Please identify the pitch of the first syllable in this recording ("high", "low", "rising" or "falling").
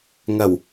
low